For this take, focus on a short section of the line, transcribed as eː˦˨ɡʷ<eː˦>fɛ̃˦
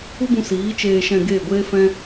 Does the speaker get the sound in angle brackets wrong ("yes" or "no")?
no